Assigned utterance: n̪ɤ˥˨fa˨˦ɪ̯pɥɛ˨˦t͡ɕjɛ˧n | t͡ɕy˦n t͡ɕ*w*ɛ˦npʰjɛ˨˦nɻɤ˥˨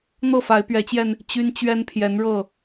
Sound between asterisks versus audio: incorrect: ɥ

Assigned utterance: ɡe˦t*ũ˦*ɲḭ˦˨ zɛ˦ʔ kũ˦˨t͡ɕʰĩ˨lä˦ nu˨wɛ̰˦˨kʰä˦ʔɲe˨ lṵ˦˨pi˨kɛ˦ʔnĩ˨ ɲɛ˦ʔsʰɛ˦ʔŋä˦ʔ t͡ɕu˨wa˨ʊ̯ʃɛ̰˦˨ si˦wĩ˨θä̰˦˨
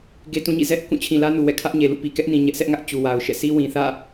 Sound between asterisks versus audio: correct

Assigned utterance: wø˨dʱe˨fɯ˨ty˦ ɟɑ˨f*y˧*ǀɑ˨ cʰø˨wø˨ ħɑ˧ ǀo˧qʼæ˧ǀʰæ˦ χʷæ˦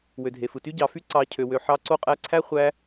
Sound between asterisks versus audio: correct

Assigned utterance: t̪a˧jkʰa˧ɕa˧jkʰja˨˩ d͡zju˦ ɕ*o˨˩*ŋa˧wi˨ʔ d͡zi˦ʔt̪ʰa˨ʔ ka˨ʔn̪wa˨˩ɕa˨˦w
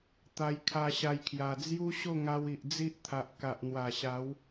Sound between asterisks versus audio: incorrect: o˥˧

